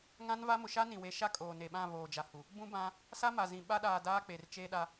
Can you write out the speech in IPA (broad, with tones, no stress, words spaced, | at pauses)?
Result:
ŋã˦nva˦ mʊ˨ʃa˦nĩ˨we˨˦ ʃa˦kʼoː˨ne˨ɓã˦˨ βoː˨d͡ʒa˨hu˨ | bũ˦bã˦ | sa˦ma˨zĩ˨ ɓa˦ɗaː˨ daː˦k͡pe˨rt͡ʃeː˦ɗa˦